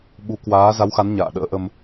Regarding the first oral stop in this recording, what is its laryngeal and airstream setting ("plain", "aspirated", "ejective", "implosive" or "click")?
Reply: implosive